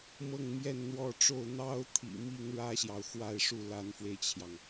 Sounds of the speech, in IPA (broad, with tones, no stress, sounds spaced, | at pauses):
m ɤ˥˧ ŋ m j ɛ˥˧ n n̪ w ɔ˥˧ ʈ͡ʂ o˥˩ ʊ̯ n̪ ɑ˥ ʊ̯ t̪ʰ ḭ˨˩ m i˥ ŋ ɻ ä˥ ɕ j ɑ˨ ʊ̯ x w a˥˧ ɪ̯ ʂ u˥˩ l a˧˥ n f w e˧ ɪ̯ t͡ɕʰ j ɑ˩ ŋ